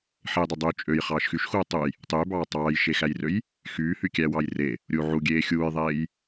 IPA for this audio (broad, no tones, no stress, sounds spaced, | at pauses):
ħ e j dˤ ø dˤ yː t͡ʃʼ ø j χ ɑː ʃ x y ʃ x uː tˤ u j | tˤ yː b ɑː tˤ ɑː j ʃ e x æ j r ø j | x yː h y kʲ æ w ɑ j r e | ɾʲ u ʕ u ɡʲ eː xʲ uː j ðˤ eː j